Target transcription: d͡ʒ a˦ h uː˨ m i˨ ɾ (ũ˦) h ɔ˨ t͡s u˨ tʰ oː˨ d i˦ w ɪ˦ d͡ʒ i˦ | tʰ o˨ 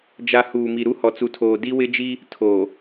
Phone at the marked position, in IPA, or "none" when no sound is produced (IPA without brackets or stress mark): u˦